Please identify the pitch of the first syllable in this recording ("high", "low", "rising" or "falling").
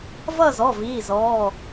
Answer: falling